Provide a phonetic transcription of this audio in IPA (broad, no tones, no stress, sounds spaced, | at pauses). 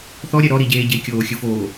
θ ɔ ɾʲ ɛ ɾ ɔ ɾ i ɟ eː ɟ e kʲ oː xʲ ɯ f oː